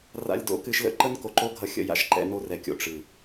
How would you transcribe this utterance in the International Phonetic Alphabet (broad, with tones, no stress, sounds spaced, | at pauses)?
r a̰˨ lʲ d o̰˨ k ɨ˨ ʃ l ə̰˦ ǃ ə˦ n k o˨ ǃ o˦ ɡʱ ʌ˨ xʲ ə̰˨ j a̰˨ ʃ ǃ ɛ̰˨ n o˦ r ɛ˨ kʲ o̰˨ ʈ͡ʂ ɨ˨